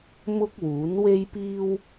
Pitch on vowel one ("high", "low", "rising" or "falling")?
high